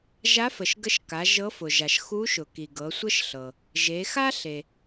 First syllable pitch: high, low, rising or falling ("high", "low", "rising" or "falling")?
rising